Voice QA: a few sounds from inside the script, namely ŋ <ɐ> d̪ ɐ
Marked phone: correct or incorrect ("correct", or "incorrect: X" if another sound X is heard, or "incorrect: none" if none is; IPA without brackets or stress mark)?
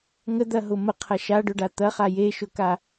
incorrect: ə